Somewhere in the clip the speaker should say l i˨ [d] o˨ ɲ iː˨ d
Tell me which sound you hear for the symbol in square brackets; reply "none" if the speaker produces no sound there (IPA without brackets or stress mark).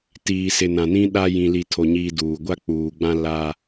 tʰ